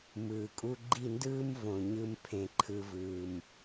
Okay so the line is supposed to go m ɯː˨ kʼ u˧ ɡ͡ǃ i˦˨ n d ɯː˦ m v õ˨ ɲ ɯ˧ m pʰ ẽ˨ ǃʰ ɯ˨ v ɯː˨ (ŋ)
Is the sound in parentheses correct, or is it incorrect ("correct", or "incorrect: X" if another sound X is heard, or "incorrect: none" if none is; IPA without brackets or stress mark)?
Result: incorrect: m